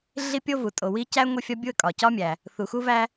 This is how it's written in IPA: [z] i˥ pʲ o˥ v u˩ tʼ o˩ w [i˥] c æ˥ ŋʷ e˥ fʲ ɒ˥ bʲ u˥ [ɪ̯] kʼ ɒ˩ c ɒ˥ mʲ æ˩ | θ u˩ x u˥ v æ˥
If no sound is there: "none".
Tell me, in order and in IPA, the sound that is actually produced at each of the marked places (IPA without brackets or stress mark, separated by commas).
ɮ, i˥, ə̯